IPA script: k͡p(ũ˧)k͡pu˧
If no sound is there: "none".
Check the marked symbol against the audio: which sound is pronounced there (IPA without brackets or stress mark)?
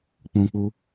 ũ˧